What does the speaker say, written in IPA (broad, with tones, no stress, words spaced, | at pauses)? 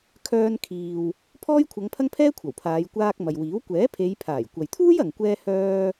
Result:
kʰœː˧nkʰiː˨w | pʰɔː˥jkʷʰɐ˨˧ŋpʰɐ˥ŋpʰɛː˥ kʷʰɐ˨˩wpʰaː˨˧j kʷaː˧k̚ mɐ˨jwiː˨˥w kʷɛː˨˥pʰe˨˧jpʰaː˨˩j kʷɐ˨jt̪ʰuː˥jɐ˨ŋkʷɛː˧ hœː˧